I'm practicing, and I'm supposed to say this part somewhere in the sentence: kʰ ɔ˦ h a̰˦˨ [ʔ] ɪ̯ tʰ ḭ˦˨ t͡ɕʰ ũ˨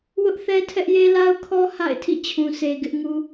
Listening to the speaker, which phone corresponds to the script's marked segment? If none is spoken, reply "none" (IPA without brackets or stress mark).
none